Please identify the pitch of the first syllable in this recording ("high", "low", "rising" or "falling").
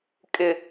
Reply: low